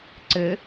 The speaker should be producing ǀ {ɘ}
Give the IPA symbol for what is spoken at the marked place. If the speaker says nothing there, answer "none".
ɘ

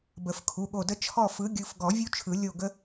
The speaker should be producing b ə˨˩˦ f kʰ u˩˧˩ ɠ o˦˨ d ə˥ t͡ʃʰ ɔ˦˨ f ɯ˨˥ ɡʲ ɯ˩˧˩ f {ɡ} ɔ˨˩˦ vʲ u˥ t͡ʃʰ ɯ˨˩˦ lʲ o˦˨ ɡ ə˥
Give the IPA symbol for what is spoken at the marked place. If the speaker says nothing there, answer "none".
ɡ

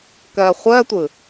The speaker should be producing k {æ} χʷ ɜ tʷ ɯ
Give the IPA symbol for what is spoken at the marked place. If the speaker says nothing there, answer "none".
ɜ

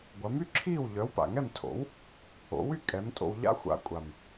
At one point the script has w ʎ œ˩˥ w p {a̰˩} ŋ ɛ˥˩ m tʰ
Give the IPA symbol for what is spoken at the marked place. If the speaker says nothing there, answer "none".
a̰˩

